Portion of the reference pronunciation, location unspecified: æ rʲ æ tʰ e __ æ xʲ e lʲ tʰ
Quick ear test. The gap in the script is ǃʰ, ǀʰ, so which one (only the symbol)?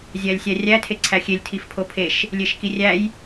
ǀʰ